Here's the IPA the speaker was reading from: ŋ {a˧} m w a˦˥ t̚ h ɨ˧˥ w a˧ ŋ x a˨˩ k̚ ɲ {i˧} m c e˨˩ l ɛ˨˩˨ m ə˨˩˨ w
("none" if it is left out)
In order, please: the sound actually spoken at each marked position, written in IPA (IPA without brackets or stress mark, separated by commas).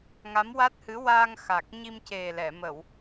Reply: a˧˥, i˧